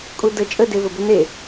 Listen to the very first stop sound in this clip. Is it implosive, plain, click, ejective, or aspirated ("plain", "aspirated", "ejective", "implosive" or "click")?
ejective